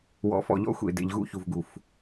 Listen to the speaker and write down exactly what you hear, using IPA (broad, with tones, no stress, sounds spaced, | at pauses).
w ɔ̰˨˦ f ɔ̰˨ ʎ ɔ̰˦ xʷ ḛ˨ d ḛ˨ ʎ ɣ ṵ˦ ç u˨ v ɡ u˨ f